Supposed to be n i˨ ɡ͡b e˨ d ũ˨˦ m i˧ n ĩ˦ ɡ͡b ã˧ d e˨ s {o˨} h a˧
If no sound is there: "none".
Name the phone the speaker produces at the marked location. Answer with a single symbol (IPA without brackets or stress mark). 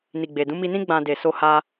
o˧